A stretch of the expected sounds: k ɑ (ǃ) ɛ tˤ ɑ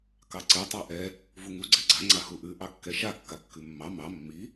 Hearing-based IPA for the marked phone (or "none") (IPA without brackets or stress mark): ǀ